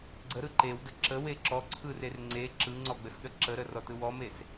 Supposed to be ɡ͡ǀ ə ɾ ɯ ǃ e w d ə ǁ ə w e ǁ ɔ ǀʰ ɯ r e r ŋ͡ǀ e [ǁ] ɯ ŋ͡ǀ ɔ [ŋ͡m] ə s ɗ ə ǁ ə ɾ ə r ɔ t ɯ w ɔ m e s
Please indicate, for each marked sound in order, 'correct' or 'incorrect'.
correct, incorrect: ɡ͡b

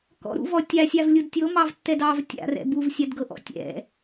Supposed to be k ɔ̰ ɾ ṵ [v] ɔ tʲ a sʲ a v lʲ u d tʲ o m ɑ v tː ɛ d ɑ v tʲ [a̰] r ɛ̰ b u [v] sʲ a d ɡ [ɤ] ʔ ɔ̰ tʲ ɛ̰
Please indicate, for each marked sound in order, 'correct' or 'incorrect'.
correct, correct, correct, correct

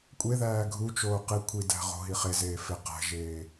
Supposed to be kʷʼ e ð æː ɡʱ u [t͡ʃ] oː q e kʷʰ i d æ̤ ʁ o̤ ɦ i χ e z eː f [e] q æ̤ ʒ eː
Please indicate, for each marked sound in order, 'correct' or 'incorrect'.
correct, correct

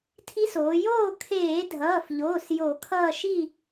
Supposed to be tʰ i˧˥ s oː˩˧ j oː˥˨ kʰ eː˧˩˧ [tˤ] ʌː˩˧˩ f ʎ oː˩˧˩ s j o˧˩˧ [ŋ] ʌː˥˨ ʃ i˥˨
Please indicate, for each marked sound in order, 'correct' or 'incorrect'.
incorrect: dʱ, incorrect: kʰ

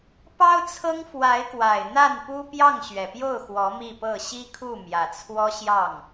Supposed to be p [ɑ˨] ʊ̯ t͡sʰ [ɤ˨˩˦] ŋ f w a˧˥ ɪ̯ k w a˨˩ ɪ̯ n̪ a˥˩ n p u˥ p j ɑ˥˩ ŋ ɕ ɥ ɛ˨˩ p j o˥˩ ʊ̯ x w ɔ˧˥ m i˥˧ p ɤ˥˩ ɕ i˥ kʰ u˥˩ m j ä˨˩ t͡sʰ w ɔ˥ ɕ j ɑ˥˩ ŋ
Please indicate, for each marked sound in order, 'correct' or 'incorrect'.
incorrect: ɑ˥, incorrect: ɤ˥

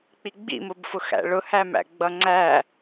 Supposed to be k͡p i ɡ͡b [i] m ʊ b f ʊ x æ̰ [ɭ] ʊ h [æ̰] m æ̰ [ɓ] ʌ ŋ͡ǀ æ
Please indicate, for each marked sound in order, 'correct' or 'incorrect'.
incorrect: ḭ, correct, incorrect: æ, incorrect: ɡ͡b

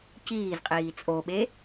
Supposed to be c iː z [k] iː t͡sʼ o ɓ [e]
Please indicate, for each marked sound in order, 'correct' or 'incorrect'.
incorrect: qʼ, correct

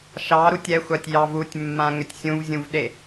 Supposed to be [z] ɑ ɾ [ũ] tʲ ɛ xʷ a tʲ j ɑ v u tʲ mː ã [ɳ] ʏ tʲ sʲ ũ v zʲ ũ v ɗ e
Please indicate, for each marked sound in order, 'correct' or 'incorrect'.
incorrect: ʃ, incorrect: u, incorrect: ŋ

